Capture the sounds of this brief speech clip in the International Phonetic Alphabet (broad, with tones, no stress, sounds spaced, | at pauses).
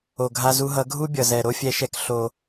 o˨ ɡʱ a˧ z u˧ ɦ ʌ˨˦ ɡʱ u˦ bʲ ʌ˨ z ɛ˨ ɾ o˦ fʲ ɛ˧ ʃ ɛ˧ k ɬ o˨